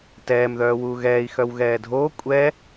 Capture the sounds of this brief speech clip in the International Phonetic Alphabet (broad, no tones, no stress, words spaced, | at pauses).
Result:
tɛːmðœːwuː ɣɛːi̯ xœwɣɛːdʱoː kʷʼɛ